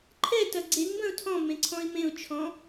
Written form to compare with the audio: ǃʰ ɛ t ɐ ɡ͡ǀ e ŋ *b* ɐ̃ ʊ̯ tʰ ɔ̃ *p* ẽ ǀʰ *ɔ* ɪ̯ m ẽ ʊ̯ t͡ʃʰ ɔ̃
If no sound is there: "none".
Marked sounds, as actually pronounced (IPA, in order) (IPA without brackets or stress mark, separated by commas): b, m, ɔ̃